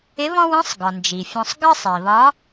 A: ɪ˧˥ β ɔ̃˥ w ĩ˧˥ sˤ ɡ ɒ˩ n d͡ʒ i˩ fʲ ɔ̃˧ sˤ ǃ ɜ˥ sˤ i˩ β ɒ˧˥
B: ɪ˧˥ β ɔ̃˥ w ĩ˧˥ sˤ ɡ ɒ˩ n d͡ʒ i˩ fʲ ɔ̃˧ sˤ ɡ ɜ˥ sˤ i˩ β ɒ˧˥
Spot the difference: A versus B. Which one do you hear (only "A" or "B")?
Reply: B